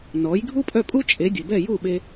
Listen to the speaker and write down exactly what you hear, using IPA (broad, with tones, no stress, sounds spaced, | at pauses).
n ɔ˩˥ j ɡʱ u˥ pʼ œ˥˩ pʼ u˥ t͡ʃʼ e˩˥ dʲ ə˩ b ɛ˥˩ j u˥˩ ɓ e˧